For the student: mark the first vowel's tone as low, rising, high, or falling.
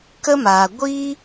high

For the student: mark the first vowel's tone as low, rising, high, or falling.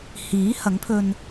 rising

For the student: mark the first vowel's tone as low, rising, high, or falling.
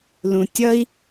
low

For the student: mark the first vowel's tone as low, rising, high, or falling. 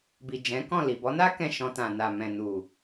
low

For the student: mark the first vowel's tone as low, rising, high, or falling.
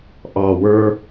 low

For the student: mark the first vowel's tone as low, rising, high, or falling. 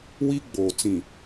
high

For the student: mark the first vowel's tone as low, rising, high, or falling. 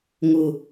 falling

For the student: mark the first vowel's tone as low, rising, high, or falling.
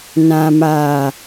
low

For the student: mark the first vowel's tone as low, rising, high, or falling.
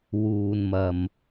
low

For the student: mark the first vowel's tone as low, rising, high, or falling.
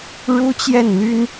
high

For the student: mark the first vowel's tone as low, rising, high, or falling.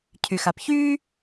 low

